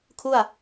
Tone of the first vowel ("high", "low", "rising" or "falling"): falling